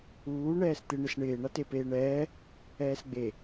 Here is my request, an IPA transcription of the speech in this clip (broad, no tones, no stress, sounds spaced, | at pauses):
uː ɳ ɛː s t̪ ɪ ɳ ɪ s ɳ ɪː ɳ a t e p eː ɳ ɛː | ɛː s ɡ͡b e